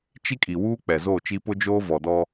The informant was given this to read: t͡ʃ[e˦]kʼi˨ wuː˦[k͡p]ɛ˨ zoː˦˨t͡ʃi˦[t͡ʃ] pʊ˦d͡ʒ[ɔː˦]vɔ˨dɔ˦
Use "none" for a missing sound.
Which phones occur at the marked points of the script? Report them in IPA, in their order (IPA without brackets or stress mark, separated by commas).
i˦, k͡p, none, oː˦